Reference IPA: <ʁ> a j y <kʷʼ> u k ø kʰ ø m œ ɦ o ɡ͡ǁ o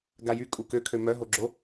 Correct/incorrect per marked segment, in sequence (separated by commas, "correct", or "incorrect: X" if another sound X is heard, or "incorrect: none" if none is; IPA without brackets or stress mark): incorrect: ɡ, incorrect: kʼ